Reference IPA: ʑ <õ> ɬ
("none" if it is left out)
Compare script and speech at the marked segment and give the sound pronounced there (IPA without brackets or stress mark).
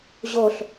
o